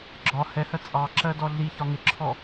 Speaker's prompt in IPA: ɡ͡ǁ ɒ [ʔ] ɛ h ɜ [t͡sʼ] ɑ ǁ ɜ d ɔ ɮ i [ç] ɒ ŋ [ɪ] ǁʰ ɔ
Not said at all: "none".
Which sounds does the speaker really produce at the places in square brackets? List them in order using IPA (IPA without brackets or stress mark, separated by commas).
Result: h, t͡sʼ, ç, ɪ